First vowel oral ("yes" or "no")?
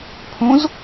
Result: no